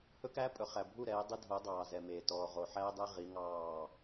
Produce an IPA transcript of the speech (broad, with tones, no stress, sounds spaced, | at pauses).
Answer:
h ɵ˦ k æː˦ pʼ ɵ˨ χ æ˨ bʱ u˦˨ ɾ ɛː˨˦ dˤ i˦ dʱ o˨˦ dˤ ɑː˨ z ɛ˨ m e˨ t ɔː˨ ʁ o˨ ħ æː˦ dˤ ɛ˦ ʁ i˨˦ ŋ ɑː˦˨